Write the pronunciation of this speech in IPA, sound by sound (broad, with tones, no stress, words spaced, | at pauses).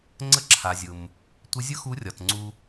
ŋ͡ǀə˧ǁʰa˩ zʲʊ˩m | tʷɪ˧˥ zʲʊ˥xu˧˥rʲɒ˩t ŋ͡ǀu˧